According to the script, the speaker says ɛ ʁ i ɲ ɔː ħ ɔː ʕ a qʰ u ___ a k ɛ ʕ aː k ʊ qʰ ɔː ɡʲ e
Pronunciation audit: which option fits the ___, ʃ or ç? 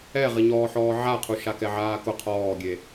ʃ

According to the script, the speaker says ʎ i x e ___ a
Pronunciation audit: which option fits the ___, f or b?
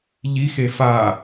f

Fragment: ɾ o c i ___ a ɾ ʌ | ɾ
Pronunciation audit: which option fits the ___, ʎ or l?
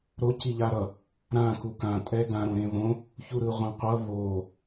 ʎ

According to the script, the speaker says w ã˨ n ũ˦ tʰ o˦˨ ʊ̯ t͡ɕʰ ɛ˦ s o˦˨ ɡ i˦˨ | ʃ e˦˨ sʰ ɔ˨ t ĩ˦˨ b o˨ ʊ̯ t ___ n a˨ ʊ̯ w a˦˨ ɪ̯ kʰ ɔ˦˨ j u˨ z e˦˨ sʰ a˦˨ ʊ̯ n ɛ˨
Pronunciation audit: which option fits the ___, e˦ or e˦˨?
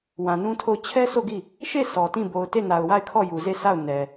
e˦˨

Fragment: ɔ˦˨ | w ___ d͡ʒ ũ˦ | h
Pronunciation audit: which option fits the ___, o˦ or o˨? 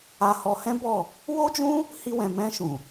o˦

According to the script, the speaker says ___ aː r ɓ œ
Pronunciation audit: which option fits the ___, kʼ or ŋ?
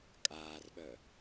kʼ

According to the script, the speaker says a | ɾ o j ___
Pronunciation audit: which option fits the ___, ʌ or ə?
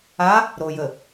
ə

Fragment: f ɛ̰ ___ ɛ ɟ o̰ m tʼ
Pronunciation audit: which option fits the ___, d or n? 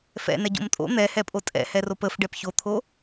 n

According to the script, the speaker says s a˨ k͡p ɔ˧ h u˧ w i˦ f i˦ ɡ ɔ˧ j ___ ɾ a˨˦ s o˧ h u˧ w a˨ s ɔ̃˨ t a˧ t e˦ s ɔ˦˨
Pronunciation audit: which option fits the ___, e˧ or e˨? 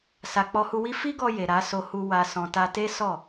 e˨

